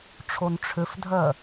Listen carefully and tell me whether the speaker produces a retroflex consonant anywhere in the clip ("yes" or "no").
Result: yes